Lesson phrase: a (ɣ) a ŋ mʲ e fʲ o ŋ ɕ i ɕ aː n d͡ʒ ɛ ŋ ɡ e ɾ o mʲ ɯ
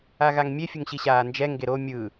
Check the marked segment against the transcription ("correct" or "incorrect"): correct